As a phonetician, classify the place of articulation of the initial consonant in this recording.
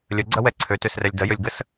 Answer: alveolar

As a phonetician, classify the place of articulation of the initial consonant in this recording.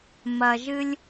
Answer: labial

